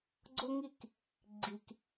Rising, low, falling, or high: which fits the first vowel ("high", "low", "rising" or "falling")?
high